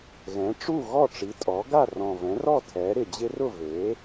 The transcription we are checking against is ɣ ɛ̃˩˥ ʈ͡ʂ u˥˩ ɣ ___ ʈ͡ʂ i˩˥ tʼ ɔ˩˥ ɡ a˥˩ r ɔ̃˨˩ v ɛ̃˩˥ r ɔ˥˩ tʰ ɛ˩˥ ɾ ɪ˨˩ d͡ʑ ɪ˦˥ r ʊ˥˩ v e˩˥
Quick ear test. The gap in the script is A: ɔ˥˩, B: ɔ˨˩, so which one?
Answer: A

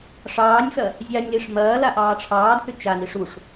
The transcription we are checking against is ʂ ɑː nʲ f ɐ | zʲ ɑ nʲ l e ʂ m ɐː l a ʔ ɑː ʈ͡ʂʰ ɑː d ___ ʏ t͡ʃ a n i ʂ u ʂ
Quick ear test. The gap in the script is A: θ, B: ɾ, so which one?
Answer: A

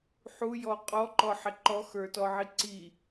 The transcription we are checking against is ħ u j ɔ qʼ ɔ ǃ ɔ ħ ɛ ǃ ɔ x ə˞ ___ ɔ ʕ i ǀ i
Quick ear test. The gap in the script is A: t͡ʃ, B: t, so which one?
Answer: B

